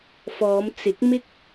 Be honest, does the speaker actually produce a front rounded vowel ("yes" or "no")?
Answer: no